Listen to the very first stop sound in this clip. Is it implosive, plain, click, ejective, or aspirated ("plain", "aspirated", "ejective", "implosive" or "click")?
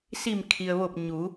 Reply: aspirated